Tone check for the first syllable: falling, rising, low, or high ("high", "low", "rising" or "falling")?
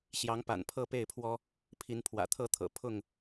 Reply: rising